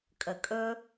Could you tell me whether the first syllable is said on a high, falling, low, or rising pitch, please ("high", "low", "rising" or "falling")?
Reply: low